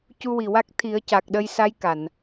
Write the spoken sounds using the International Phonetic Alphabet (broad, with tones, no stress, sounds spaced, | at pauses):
c u˧ w i˨˩ w a˦˥ k̚ t̪ʰ i˨˩˦ ə̯ c a˨˩ k̚ ɗ ə˧ j s a˧˥ j k a˨˩˨ n